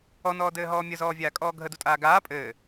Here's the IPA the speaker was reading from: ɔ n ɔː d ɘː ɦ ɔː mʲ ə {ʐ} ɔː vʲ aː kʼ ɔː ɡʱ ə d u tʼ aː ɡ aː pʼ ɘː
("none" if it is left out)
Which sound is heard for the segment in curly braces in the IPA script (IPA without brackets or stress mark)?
z